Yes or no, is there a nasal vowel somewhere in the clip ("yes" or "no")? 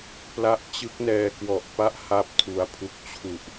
no